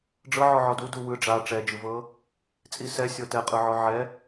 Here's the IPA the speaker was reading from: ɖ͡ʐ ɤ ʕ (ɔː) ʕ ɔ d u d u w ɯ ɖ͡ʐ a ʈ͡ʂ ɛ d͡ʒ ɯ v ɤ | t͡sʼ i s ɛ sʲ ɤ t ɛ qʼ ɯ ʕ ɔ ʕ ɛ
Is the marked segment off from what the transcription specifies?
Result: yes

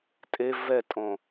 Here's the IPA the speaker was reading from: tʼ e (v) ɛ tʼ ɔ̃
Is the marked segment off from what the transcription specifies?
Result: no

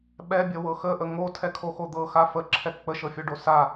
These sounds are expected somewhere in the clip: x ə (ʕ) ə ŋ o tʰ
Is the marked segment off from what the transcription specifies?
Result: yes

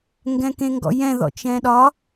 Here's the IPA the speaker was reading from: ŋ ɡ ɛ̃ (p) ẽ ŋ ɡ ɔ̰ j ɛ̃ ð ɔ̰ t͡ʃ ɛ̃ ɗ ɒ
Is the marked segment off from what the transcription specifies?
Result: yes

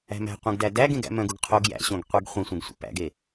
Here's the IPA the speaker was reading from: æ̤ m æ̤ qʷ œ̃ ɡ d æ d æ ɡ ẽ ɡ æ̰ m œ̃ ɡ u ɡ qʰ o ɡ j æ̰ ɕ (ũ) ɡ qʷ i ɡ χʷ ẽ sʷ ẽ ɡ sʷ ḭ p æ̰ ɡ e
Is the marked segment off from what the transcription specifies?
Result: yes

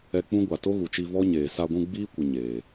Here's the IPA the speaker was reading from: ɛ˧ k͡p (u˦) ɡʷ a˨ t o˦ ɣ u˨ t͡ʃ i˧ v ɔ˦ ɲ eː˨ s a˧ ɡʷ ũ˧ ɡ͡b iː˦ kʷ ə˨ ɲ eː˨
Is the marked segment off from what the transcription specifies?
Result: yes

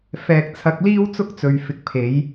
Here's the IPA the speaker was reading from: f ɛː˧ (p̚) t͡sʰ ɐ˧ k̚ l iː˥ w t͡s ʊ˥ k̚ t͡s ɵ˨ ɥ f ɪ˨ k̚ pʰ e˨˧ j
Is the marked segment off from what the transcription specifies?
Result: yes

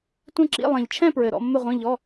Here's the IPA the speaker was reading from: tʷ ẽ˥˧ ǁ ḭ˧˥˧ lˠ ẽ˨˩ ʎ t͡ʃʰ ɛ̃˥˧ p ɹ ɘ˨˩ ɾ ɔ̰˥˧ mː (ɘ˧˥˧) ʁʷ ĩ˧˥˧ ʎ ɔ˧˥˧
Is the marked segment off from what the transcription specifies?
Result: yes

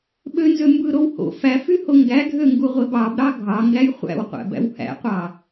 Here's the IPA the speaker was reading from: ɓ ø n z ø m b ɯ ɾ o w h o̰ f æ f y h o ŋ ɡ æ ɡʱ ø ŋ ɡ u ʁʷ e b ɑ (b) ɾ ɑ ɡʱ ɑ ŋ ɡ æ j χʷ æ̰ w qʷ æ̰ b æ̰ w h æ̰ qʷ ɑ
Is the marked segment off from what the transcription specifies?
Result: no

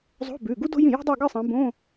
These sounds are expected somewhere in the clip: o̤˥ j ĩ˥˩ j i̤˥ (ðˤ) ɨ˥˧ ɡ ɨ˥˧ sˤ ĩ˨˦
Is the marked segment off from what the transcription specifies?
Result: yes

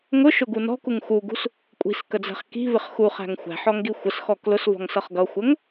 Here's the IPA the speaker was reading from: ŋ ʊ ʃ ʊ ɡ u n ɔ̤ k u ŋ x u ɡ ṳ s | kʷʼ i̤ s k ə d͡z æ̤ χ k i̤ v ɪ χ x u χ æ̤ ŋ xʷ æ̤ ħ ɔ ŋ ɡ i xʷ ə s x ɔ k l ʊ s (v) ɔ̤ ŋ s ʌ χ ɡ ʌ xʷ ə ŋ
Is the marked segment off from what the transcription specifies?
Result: no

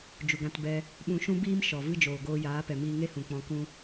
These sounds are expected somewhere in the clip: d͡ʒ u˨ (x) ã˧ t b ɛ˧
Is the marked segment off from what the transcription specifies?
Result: yes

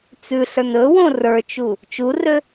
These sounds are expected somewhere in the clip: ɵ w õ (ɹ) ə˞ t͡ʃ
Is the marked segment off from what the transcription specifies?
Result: yes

